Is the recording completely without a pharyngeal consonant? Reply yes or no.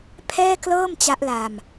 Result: yes